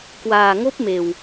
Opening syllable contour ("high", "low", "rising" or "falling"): low